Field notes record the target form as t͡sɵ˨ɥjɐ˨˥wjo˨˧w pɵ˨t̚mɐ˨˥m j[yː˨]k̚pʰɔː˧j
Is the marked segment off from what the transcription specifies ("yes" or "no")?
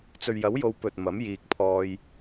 yes